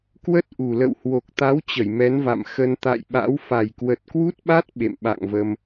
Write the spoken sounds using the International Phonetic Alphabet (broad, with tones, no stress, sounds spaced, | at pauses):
k w ə˦˥ t̚ ʔ u˨˩ l ə̰˧˨ w h w o˨˩ k̚ t̪ a˨˦ w t͡ɕ ə˧˩ j m ɛ˨˦ n v a̰˧˨ m x ə˧ n t̪ a̰˧˨ j ɓ a̰˧˥ w f a˨˩ j k w ə˨˩ t̚ k w u˦˥ t̚ ɓ a˦˥ t̚ ɓ ḛ˧˨ m ɓ a̰˧˨ ŋ v ə˧ m